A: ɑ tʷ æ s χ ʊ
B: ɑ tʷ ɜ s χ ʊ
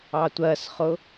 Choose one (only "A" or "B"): B